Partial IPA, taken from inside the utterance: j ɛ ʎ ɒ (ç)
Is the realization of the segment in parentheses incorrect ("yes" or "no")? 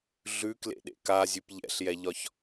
no